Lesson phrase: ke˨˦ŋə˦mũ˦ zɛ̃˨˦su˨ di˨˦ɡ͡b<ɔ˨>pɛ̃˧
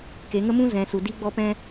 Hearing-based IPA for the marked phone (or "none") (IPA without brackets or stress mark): ɔ˧